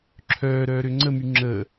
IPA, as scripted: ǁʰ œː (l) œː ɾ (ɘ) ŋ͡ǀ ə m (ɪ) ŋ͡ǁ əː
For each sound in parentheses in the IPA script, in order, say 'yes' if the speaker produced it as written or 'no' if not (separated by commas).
no, no, no